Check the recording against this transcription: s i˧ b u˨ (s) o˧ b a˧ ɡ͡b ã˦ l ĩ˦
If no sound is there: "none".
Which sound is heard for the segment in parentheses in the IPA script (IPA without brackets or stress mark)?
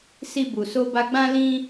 s